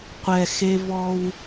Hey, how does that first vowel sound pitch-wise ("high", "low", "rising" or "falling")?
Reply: low